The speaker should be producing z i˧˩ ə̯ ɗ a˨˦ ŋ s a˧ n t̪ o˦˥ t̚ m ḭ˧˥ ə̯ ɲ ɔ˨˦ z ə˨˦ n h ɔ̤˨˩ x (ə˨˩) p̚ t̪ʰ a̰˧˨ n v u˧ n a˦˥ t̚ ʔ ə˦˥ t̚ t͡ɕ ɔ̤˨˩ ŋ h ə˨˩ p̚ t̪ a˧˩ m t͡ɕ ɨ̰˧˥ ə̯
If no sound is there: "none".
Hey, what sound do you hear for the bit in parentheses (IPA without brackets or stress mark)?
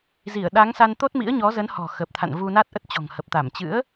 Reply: ə˨˩